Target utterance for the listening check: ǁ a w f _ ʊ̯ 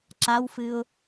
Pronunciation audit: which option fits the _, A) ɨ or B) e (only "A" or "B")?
A